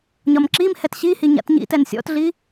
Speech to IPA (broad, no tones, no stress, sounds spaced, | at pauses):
ɲ ɒ m ǁ i m h ɛ t ɕ i h i ɲ a̰ t ɲ ḭ t ɛ n sʲ ɔ̰ t ɮ i